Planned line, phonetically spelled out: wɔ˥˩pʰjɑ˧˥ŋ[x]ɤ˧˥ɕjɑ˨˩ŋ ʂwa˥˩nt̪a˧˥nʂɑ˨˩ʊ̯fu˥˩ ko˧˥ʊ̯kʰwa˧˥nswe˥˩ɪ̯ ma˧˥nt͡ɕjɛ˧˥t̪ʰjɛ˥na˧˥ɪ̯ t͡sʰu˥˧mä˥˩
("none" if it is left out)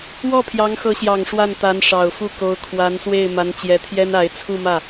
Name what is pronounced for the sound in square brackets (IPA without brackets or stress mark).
x